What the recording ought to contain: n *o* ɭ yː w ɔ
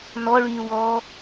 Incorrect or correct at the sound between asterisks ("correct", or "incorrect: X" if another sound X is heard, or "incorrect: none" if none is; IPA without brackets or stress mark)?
incorrect: ɔ